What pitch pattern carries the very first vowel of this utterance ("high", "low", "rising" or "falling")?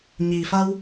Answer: low